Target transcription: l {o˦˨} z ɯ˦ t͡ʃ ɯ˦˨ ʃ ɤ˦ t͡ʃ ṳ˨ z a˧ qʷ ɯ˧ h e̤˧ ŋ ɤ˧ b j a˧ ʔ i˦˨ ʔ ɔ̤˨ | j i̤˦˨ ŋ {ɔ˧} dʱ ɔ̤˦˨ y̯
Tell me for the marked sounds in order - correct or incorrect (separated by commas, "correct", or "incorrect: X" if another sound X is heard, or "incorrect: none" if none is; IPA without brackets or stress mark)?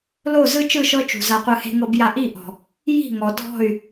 correct, incorrect: ɔ˨